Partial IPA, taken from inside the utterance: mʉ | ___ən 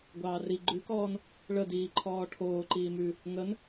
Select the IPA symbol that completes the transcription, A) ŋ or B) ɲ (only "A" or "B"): A